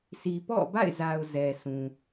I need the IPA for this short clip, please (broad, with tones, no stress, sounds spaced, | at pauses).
sʰ i˨ p ɔ̰˦˨ b a̰˦˨ ɪ̯ z a˨ ʊ̯ z ɛ˨ sʰ ũ˨